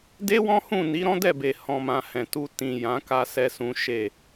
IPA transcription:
de˦wɔ̃˦hũ˦˨ni˨˦ ɾɔ̃˦dɛ˦˨be˨ hɔ̃˨mã˨ hɛ̃˨tu˧ tĩ˨ jã˨˦ka˧ sɛ˦sũ˦ ʃe˦˨

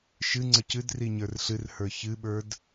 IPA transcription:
ʃɨ ŋ͡ǀəcɨdri ɲə˞rɬɨrhə˞ çɨɓə˞d

